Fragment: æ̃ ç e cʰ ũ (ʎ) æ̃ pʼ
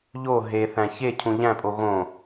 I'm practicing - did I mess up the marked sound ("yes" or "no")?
no